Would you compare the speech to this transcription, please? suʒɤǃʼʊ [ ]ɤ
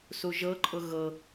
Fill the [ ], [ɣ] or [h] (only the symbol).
ɣ